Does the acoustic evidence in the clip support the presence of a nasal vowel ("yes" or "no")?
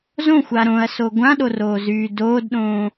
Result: yes